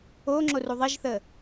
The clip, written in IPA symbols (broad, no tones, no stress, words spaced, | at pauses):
oŋ͡ǁoru ðˤiʒθə